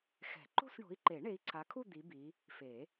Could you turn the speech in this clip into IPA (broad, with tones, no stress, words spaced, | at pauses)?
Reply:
xɛ̤˨˩˦ǃo̤˥˧sɳo̤˨˦i̯ǃe˨˩˦ ɳe˨˦i̯ǀʰa˨˦kʰu˥˧ d̪i˨˦bi˨˦ | fe˨˩˦